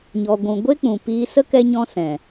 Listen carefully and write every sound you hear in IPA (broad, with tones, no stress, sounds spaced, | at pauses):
ɲ ɔ˨ ɡʷ ũ˨ ɡʷ e˦ k͡p ũ˨ p iː˧ s ə˦ k ɛ˦ ɲ ɔ̃˦ s ɛ̃˨